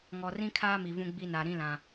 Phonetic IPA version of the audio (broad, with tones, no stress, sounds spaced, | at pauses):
ŋ ɔ˨ r ĩ˦ kʰ aː˦ m i˨ v ũ˦ ɡ͡b i˦ n a˨ ɾ ĩ˦ l ã˨